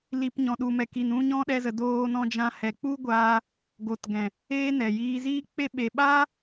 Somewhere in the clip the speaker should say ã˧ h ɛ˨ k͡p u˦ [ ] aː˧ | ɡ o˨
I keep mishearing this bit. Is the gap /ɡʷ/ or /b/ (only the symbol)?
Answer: ɡʷ